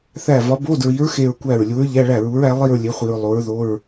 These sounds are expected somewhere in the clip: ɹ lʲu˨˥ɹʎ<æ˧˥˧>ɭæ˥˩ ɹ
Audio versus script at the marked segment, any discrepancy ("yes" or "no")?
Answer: no